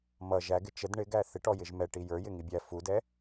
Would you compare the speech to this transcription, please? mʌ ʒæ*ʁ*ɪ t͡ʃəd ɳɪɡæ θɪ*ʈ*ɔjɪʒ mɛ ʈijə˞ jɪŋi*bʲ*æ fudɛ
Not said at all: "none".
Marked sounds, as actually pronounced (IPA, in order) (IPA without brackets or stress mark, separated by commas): ɡ, ʈ, bʲ